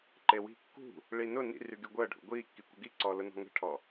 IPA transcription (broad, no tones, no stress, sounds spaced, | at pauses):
ǃ e w i̤ kː ṳ | ɭ i n ʊ n ḭ r y ɡ y ɡʷ əː ɖʱ ṵ ɡʷ iː kː i kʷ ə ɡ i ǀ ɔː l ʊ n ɔ̤ ŋ ə̤ ʈʰ ɔ